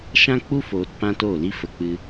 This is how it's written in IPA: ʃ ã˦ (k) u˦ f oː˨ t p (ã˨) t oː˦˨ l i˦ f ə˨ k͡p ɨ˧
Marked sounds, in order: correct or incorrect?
incorrect, incorrect

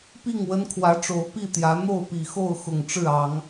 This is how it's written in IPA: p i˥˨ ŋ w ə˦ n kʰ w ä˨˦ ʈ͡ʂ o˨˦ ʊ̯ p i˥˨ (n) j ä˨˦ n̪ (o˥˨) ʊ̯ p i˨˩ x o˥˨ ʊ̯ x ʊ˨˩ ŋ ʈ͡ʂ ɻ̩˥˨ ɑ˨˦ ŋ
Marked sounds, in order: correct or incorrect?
incorrect, correct

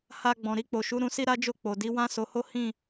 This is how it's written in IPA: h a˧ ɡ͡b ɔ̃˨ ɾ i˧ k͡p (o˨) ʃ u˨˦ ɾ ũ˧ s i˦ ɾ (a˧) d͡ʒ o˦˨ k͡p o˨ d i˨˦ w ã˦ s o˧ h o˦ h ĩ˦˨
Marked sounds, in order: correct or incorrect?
correct, incorrect

